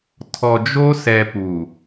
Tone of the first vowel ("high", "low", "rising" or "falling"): low